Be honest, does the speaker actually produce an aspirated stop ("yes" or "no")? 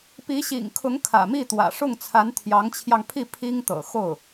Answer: yes